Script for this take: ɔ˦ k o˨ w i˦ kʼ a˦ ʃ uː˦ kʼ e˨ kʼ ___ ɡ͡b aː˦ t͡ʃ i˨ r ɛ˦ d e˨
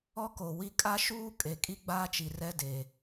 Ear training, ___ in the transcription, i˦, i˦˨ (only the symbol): i˦